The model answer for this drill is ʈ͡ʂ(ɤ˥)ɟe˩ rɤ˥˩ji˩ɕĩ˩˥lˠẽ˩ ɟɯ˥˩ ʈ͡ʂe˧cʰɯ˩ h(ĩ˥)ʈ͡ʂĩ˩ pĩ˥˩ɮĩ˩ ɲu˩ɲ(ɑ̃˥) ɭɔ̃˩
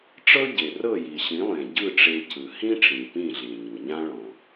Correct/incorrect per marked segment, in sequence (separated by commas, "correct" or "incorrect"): correct, correct, incorrect